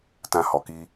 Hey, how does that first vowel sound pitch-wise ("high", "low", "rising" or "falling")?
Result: high